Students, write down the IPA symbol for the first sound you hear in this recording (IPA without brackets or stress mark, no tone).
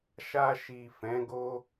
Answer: ʃ